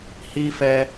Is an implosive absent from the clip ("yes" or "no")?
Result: yes